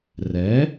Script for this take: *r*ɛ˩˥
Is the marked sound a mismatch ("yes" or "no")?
no